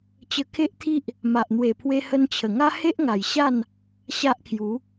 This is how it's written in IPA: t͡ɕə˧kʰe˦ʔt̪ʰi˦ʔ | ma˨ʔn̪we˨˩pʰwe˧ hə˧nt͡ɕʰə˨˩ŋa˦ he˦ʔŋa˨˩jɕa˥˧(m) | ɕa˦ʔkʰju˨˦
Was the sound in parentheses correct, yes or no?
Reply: no